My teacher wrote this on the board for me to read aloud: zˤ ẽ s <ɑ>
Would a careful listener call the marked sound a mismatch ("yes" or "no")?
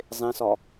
yes